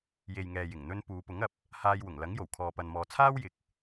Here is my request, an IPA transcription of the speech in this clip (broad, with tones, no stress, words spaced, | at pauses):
je˨jŋɛː˨ jɪ˨˩ŋn̪ɵ˧n puː˨˧pʊ˨˥ŋɐ˨p̚ | haː˧jwʊ˨˩ŋlɐ˨˥ŋ jo˨˩w kʰɔː˨pɐ˨nmɔː˨t͡sʰaː˥w jɪ˨k̚